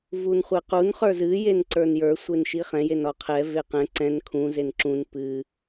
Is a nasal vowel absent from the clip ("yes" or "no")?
no